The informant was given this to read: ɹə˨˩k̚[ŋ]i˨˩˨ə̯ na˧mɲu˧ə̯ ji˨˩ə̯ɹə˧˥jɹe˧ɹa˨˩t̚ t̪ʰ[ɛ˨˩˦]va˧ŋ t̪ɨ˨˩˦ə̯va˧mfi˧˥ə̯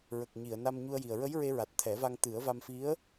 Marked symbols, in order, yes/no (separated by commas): no, yes